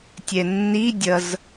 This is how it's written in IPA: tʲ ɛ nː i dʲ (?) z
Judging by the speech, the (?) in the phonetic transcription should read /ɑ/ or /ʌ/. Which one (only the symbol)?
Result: ʌ